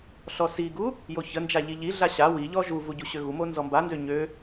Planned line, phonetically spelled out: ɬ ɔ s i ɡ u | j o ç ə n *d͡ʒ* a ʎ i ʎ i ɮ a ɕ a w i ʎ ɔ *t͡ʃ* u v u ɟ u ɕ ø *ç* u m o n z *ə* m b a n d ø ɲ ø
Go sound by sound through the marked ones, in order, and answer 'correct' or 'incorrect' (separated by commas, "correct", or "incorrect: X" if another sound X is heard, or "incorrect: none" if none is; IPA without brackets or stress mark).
correct, incorrect: ʒ, incorrect: ɣ, incorrect: ɔ